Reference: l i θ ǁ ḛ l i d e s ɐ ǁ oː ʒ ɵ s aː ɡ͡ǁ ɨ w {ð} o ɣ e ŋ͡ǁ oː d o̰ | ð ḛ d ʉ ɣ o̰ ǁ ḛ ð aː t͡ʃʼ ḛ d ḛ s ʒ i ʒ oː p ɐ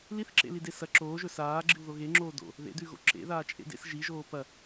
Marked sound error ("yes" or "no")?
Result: no